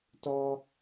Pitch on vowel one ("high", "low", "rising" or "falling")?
high